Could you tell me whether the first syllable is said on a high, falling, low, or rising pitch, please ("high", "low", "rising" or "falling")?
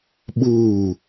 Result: falling